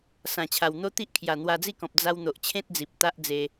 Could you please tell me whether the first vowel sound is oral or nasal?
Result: nasal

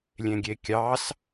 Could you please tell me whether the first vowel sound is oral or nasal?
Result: nasal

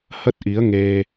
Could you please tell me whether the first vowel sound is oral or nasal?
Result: oral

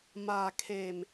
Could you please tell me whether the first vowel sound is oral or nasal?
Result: oral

